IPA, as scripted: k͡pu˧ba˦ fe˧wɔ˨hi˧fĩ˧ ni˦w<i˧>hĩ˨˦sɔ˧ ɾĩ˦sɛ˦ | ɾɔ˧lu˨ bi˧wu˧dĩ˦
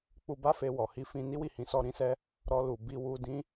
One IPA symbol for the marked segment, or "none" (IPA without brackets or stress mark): i˦˨